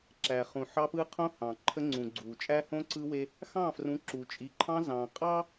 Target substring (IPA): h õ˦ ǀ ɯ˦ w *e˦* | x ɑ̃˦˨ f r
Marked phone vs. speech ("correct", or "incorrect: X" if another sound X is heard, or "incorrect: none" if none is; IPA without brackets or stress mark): correct